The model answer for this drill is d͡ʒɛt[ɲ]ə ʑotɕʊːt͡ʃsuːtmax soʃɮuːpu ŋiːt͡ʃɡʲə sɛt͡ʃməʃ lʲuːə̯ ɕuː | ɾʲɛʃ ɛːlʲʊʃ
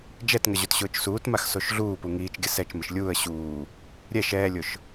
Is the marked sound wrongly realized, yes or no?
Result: yes